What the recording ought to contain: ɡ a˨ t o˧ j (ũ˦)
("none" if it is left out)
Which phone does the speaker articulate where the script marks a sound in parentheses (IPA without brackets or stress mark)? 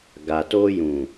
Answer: ũ˨